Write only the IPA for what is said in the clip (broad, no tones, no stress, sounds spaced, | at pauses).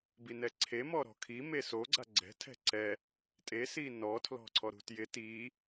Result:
b i n ɛ ǀʰ e m ɔ ɾ ɔ̤ kʰ i m e s o ɡ͡ǀ a ɡ͡ǀ ɛ̤ tʰ ɛ̤ ǀ ɛ | tʼ e s i n ɔ tʰ l ɔ̤ ǀʰ ɔ ɾ ṳ t j ɪ t i